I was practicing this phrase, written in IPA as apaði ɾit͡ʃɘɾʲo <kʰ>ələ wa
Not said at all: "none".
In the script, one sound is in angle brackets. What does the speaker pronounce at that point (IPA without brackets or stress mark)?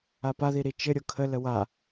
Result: kʰ